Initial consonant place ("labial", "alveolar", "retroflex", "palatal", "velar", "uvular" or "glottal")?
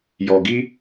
palatal